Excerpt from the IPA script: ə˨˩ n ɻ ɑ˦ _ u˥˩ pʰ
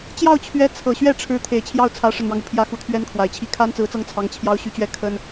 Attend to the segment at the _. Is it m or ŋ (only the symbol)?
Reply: ŋ